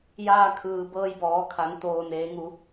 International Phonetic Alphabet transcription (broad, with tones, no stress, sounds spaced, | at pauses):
j aː˧ kʰ ɯː˩ b ɤː˧ j b ɔː˩˧ kʰ a˩˧ ŋ t̪ oː˩ n eː˩˧ ŋ u˩˧